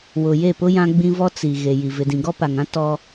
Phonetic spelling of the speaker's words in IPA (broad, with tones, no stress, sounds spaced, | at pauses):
w ʊ˨ j e˦˨ p ʊ˦ j ã˦ ɡ͡b ĩ˦ v ɔ˦ t͡s i˨ ɣ e˨ j i˨ v ɪ˨ d ĩ˨ ɡ ɔ˦ p a˨ ŋ ã˦ t ɔ˦